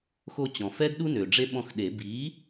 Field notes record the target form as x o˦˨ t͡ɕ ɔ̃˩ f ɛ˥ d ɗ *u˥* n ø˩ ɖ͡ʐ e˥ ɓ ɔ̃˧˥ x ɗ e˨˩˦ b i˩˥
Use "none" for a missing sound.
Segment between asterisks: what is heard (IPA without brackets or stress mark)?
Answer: u˥